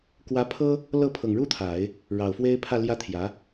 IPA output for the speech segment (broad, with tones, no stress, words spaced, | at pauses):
kwä˧˥pʰɤ˥ | lɤ˥˩ pʰɤ˨˩ŋɻu˥t̪ʰa˨˩˦ɪ̯ | ɻɑ˨˩ʊ̯fwe˥ɪ̯pʰä˥˩ ljä˥ t̪ʰjä˧˥